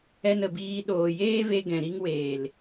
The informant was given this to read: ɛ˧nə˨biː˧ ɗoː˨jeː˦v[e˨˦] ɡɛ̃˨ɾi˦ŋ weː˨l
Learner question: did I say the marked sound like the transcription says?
no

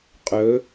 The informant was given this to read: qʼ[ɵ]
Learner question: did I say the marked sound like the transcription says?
yes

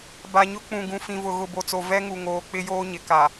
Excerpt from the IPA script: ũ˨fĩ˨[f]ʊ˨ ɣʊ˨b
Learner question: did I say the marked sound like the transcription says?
no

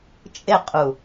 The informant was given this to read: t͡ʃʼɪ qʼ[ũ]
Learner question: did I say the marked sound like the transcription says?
no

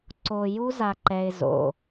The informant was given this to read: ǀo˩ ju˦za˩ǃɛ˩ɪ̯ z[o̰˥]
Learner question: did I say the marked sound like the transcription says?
no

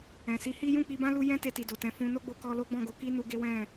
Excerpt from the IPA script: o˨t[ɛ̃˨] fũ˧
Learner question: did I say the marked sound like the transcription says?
no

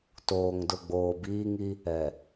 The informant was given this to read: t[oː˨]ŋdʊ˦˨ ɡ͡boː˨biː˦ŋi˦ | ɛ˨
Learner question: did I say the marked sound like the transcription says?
yes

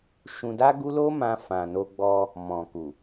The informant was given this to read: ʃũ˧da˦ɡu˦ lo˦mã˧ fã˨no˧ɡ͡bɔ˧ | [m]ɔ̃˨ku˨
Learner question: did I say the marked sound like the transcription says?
yes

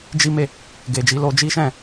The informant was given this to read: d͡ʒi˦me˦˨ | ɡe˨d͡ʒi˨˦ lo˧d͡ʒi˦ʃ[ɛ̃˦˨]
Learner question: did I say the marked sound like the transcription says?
yes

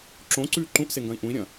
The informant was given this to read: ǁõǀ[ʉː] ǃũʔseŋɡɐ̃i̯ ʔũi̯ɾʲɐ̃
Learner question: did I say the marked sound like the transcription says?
yes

